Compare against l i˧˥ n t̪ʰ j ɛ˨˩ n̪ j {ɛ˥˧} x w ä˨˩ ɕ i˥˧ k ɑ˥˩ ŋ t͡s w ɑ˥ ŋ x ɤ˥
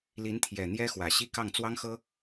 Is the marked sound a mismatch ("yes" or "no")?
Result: yes